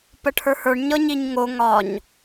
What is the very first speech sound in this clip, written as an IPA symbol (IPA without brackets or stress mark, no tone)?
p